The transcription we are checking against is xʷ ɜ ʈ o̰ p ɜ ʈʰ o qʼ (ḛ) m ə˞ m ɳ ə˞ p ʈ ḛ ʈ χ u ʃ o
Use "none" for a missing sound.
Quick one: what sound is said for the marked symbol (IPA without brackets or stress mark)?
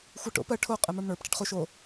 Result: e